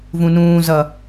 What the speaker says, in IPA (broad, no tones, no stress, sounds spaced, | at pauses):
v ũ n ũː z ʌ